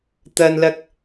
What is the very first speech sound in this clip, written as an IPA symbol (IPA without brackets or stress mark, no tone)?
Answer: t̪